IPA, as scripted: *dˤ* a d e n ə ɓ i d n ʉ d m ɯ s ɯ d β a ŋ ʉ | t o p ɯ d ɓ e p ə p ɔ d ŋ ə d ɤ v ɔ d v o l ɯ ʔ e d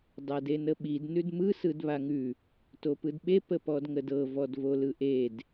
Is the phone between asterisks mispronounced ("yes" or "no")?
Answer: no